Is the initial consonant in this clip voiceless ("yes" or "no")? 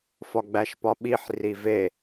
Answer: yes